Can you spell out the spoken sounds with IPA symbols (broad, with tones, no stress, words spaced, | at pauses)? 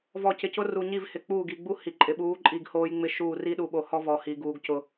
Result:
vɔ˨cɪ˨cʊ˦ ru˨ɲi˦˨v hɪ˨k͡puː˦˨ɡi˨ ɡ͡bu˦ hi˨ǃʼɪ˨ ɓuː˨˦ ǃʼi˦˨ɡhoː˦jŋ͡mɪ˦ʃuː˦˨r i˦ɗu˨ɓo˨hɔ˦ vɔ˨hi˨ ɡuː˨ɡcʊ˨